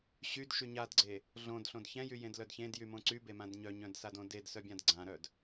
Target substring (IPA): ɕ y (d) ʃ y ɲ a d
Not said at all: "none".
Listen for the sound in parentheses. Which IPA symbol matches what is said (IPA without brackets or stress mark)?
d